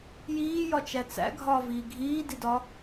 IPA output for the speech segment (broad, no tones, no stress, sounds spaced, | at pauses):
j iː j ɒ t͡ʃ æ t͡s æ̰ ɡʱ ɒː v iː ɡʱ iː d i d ɒ